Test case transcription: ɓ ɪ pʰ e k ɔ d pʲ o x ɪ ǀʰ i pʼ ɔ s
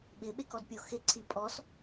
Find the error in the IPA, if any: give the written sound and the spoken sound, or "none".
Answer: pʰ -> ɓ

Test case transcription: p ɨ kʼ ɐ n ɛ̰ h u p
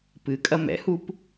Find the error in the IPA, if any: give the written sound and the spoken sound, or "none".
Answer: n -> m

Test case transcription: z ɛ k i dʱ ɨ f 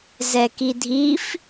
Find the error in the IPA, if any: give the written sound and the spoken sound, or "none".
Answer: ɨ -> i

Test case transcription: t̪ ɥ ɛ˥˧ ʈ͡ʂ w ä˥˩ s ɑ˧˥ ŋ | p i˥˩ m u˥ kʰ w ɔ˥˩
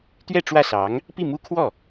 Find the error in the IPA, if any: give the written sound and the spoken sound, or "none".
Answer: none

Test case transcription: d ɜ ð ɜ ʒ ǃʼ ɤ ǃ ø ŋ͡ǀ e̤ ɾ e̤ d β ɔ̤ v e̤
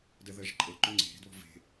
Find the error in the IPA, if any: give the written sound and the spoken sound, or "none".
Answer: none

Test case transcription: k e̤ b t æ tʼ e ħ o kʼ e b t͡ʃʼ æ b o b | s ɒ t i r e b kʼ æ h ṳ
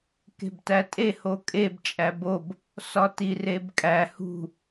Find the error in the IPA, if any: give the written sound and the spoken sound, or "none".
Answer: ħ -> h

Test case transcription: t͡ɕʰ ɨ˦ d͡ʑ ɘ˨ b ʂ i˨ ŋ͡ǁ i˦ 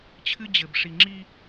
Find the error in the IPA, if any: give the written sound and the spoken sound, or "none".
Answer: none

